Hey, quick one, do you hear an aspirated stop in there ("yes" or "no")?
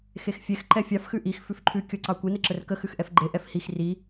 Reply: yes